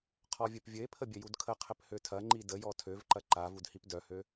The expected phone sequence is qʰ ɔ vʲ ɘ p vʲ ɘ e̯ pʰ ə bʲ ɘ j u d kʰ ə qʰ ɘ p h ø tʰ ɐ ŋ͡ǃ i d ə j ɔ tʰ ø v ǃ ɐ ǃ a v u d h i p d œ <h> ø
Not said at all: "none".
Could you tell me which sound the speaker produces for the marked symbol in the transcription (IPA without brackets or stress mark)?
h